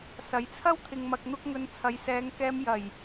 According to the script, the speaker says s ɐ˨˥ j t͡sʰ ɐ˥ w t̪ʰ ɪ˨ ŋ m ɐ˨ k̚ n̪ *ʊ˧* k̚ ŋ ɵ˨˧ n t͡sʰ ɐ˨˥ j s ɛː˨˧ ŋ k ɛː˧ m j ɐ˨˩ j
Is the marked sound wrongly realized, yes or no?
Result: no